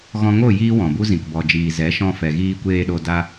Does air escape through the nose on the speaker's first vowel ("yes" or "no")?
yes